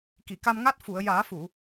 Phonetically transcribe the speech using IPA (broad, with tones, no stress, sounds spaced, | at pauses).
k i˨˩˨ k a˧ m ŋ a˦˥ t̚ f u˨˩˨ ə̯ j aː˨˩˦ f u˨˩˨